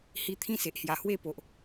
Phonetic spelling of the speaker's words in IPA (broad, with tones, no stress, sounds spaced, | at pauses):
h i˦ t̪ʰ ĩ˦ s e˨ ʔ h j a˨˩ h w e˥˧ p o˨ ʔ